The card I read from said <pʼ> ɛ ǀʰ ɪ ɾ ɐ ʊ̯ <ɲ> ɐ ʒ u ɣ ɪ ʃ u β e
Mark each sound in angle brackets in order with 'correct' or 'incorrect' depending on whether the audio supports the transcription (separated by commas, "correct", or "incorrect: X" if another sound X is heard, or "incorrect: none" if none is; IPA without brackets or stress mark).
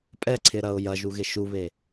correct, incorrect: j